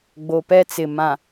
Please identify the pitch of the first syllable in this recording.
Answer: low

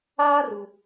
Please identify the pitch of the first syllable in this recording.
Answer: high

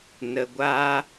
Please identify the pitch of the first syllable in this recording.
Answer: low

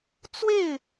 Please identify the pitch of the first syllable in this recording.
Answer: falling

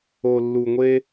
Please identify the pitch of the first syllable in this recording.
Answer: low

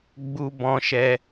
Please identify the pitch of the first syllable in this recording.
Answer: high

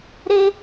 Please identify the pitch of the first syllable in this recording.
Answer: high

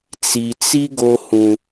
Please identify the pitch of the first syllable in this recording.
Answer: low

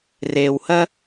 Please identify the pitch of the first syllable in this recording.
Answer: low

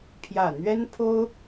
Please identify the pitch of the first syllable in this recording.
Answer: low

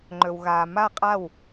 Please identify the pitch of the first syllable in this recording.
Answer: low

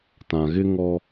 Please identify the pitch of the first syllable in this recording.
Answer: low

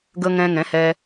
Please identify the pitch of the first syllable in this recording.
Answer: high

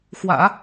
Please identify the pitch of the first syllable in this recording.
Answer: low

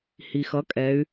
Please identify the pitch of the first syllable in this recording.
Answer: low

